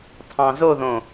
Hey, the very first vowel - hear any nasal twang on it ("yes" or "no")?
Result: yes